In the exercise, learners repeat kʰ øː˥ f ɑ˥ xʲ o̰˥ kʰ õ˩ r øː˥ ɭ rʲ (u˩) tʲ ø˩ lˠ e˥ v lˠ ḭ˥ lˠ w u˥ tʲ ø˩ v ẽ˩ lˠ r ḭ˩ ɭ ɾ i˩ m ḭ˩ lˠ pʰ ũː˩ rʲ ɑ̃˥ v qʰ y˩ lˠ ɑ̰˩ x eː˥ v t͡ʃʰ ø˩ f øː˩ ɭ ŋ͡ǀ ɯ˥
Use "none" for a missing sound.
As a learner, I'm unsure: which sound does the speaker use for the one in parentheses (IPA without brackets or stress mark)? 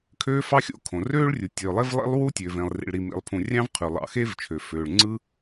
u˩